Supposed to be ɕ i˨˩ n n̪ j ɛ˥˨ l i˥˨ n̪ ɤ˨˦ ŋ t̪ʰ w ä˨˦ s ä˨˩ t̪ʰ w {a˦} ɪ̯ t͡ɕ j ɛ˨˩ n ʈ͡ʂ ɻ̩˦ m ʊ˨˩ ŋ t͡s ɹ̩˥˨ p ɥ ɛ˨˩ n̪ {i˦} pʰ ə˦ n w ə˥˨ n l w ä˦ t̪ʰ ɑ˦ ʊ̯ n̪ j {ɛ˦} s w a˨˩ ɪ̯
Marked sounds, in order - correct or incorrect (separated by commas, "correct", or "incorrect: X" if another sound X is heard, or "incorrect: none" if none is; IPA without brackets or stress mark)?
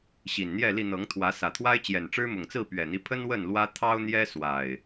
correct, correct, correct